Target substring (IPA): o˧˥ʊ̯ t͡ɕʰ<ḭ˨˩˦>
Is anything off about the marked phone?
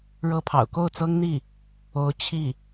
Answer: yes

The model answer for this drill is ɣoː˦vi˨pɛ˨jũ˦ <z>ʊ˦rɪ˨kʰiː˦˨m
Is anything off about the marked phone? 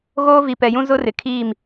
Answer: no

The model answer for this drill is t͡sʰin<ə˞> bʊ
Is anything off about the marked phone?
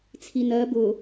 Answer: yes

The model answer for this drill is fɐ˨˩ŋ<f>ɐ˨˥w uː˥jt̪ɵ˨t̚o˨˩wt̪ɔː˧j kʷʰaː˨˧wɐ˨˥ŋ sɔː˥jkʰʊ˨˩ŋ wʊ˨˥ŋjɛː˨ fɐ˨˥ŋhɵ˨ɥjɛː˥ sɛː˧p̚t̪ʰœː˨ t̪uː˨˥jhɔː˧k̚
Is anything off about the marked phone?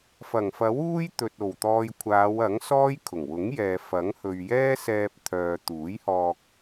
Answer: no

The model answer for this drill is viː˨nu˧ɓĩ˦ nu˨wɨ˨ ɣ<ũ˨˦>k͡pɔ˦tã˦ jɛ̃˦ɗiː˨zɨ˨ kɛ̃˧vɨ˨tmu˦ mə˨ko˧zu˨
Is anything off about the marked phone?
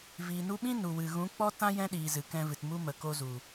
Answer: no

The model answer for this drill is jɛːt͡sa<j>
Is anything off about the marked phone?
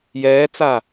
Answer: yes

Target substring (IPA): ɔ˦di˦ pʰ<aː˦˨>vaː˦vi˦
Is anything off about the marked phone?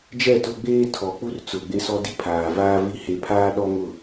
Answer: yes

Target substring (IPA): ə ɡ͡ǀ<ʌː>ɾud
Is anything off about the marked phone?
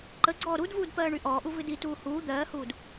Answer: yes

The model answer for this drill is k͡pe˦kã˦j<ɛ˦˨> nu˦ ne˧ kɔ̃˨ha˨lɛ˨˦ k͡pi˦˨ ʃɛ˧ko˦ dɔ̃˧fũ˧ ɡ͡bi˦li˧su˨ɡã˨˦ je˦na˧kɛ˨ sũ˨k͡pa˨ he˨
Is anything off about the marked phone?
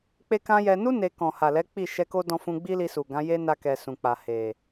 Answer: yes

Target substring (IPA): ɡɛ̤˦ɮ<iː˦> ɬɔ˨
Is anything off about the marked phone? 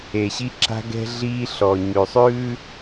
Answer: no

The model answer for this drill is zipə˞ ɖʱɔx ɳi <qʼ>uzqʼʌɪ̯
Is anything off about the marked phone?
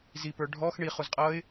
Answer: yes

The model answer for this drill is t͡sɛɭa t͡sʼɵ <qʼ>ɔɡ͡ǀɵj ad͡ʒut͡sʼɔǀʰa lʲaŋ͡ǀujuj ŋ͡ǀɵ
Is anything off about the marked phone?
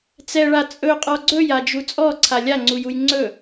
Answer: no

